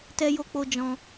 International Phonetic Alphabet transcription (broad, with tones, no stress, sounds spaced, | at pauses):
t ɛ˧ j o˧ k͡p o˧ d͡ʒ ɔ̃˧